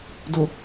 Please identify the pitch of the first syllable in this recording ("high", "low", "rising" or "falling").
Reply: low